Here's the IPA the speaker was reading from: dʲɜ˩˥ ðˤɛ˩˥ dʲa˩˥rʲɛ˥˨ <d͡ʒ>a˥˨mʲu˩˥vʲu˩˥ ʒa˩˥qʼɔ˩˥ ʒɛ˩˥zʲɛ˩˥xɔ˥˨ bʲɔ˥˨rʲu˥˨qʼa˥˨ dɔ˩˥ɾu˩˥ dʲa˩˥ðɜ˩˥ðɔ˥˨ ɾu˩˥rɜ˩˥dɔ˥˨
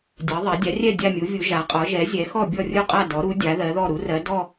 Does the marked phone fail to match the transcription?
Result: yes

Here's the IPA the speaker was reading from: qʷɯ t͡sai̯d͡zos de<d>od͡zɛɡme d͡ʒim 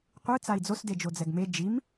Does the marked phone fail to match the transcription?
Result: yes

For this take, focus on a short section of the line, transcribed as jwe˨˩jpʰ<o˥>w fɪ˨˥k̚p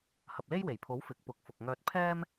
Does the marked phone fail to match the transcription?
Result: yes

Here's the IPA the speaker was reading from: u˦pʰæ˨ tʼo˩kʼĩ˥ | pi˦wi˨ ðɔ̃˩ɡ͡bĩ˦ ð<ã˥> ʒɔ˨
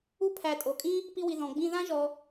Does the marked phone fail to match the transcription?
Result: no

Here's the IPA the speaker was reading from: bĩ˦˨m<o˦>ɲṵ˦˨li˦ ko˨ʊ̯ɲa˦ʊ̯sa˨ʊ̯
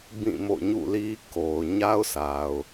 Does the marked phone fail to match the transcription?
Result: yes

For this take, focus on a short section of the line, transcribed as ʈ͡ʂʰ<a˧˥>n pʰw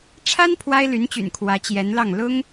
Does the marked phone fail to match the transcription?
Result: yes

